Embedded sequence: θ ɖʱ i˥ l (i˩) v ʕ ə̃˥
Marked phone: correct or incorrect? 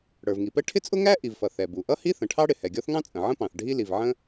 correct